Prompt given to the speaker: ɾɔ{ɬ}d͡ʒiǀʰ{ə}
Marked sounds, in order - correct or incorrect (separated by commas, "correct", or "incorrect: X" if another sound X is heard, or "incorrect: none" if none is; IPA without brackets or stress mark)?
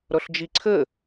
correct, correct